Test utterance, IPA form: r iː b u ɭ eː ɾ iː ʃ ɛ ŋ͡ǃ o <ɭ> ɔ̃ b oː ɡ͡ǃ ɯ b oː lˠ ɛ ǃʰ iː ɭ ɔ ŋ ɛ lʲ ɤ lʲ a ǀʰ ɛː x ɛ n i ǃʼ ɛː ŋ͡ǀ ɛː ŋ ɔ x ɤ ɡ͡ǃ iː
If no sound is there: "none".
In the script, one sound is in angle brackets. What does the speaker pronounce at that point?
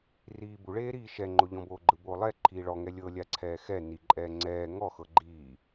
ʎ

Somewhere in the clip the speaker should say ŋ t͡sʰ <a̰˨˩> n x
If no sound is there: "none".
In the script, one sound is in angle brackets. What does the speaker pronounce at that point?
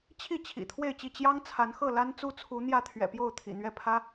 a˨˦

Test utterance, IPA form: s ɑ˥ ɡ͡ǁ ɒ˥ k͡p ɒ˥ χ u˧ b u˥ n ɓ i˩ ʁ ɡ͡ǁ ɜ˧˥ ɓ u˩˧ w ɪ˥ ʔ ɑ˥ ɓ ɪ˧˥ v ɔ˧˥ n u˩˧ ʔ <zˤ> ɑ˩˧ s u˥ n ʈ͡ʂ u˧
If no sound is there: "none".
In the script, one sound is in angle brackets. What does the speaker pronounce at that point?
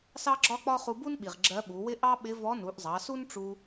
zˤ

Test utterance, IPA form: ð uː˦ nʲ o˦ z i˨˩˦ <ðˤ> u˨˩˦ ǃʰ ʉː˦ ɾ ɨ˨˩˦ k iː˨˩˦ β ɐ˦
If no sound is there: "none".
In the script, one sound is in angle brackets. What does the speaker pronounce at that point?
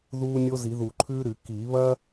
ð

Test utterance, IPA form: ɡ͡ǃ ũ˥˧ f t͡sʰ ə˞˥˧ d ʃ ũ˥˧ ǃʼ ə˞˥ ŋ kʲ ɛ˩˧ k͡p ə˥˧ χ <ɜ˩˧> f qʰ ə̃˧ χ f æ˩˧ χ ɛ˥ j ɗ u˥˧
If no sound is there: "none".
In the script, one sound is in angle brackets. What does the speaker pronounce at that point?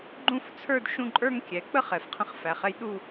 ɛ˩˧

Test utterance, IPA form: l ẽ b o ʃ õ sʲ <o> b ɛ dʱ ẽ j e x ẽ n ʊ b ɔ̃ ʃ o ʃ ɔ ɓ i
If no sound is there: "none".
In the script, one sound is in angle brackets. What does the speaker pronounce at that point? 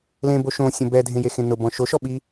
õ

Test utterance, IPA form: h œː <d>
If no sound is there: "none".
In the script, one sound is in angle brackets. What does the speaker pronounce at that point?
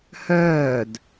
d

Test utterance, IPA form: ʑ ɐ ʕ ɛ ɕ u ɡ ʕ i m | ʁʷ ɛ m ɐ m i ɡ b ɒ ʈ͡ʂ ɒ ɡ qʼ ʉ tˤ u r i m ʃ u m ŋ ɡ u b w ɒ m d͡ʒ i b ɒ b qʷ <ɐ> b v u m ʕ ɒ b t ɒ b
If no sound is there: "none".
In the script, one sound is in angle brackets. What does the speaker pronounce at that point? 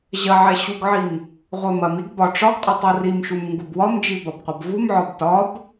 ɐ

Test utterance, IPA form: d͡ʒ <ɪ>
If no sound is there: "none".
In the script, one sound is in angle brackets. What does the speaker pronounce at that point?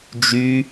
y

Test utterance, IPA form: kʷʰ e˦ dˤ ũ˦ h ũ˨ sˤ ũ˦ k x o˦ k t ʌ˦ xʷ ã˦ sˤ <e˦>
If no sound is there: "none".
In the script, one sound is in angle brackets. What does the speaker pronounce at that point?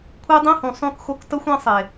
e˨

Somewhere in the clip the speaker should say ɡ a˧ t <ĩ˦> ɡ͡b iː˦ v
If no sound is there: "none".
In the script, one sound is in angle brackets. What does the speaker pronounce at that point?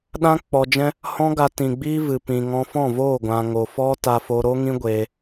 ĩ˨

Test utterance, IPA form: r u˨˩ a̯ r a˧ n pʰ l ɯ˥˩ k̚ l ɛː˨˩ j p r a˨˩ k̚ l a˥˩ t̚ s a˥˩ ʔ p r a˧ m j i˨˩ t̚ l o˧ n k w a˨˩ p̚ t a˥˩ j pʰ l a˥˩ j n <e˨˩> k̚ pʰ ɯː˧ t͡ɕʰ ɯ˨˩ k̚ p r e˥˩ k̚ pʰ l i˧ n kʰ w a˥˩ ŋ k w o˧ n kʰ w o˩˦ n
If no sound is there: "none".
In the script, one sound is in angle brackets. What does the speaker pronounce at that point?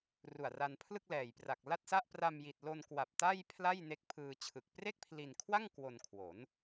e˦˥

